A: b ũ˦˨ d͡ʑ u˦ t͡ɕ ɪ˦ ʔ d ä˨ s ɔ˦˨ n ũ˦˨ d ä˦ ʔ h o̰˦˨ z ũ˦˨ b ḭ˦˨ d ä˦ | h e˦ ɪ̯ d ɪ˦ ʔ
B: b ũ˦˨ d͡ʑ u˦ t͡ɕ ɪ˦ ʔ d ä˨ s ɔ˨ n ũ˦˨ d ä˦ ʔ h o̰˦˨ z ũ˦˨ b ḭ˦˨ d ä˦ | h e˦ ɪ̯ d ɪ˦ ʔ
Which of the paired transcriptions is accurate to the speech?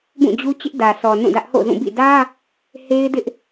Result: B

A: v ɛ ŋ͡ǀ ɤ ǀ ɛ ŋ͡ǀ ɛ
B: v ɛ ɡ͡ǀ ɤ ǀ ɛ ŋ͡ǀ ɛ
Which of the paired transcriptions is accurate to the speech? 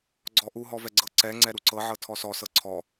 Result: B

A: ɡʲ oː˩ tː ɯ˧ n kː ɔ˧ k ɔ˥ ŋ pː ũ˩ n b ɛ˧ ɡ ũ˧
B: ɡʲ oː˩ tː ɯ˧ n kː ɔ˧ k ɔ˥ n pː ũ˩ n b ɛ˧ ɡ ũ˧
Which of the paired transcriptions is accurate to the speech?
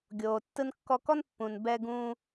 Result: B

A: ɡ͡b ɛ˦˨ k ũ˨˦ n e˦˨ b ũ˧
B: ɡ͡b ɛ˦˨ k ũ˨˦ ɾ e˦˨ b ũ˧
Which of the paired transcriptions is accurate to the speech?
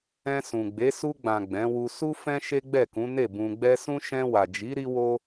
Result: A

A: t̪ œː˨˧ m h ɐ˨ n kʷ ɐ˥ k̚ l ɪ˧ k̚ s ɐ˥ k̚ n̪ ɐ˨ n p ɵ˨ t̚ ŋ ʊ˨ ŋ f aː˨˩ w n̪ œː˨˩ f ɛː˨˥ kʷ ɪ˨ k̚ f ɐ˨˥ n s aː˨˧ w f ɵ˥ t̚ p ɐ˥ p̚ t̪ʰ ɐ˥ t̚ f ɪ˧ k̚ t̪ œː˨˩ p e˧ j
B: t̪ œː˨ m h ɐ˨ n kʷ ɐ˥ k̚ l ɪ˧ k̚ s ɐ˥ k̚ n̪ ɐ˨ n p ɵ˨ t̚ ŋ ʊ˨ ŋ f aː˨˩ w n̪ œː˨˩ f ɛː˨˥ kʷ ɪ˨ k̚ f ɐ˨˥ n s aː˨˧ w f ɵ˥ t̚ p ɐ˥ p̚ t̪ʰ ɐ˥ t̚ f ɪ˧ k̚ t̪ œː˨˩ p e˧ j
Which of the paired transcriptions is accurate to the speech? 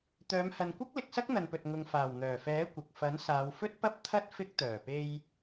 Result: A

